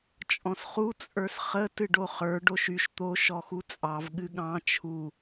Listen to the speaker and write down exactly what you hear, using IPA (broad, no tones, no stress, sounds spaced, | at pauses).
t͡ʃʼ ɔ̃ s χ u t͡sʼ ə˞ s χ ə t ɨ ɖ o χ ə˞ ɖ o ʃ y ʃ t̪ o ʃ ɔ x u t͡sʼ ɑ v ɠ ɨ ɠ ɑ̃ t͡ʃʰ u